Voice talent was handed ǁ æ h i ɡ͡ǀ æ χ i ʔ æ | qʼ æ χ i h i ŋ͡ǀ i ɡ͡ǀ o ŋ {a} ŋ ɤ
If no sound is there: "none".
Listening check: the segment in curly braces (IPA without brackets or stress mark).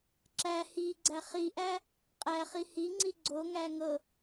æ